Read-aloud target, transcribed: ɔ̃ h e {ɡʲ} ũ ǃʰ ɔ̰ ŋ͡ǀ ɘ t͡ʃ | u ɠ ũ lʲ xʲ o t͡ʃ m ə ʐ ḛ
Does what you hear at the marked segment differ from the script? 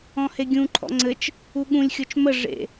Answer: no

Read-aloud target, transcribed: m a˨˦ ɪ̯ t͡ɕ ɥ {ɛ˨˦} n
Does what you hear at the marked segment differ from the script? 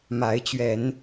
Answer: no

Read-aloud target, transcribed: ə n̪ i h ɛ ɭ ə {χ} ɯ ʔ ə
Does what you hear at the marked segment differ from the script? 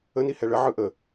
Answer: yes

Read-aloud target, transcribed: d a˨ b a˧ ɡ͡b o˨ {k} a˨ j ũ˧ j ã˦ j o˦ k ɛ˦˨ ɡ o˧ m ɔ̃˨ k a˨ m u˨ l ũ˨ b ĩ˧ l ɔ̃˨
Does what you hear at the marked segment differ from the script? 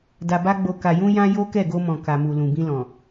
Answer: no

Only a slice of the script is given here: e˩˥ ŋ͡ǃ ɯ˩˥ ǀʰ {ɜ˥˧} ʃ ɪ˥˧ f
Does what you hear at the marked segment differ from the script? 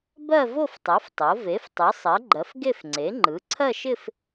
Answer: no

